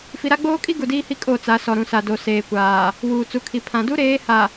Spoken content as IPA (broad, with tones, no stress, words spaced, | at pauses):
fi˨ɾa˦ɡ͡boː˦kʼi˦ ɡu˨diː˦hi˦ kʼo˦˨t͡sa˨˦ sɔ˨ɾũ˨sa˨ do˨seː˨kʷaː˨ | wuː˨t͡su˨kʰi˨ pʰã˨du˦ ɾeː˨˦ha˨